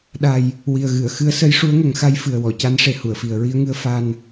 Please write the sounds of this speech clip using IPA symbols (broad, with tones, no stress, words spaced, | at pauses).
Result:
ɗa˨˩j | wi˨˩ə̯ɣɨ˨˩˨ə̯ xɨ˧˥ə̯ sə˧˥jʂu˧˥ə̯ŋə˨˩˦ŋxa˧˥j fɨ˨˩ə̯wɔ˨˩˨ca˧˥n ʂe˨˩hu˨˩˨ə̯fi˨˩ə̯ ɹi˧ə̯ŋɨ˧ə̯ fa˧n